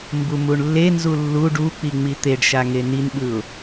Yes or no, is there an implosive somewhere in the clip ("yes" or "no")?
yes